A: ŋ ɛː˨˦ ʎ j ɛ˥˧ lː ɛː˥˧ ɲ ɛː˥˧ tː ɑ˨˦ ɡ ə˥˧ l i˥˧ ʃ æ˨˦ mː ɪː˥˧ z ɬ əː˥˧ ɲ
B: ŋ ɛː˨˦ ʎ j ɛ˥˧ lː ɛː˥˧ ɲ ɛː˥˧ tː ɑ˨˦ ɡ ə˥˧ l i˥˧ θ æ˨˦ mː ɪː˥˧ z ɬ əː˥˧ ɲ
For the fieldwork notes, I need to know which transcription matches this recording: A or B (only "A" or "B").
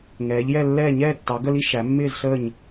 A